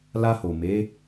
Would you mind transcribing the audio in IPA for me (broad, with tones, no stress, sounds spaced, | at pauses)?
l a˧ h o˨ m e˨˦